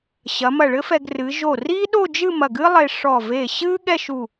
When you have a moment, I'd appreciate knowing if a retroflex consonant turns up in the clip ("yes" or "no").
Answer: yes